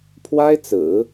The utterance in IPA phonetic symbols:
pʰ w a˥ ɪ̯ t͡s ɹ̩˨˩˦

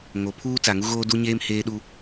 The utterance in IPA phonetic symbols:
ŋ o˨ pʰ uː˦ t͡s a˨ ŋ u˦ ɣ oː˦ d u˦ ɲ eː˦ m h eː˦ ɗ u˦

